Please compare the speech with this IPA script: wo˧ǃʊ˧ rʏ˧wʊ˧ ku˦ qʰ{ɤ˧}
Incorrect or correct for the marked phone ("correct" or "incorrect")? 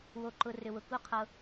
correct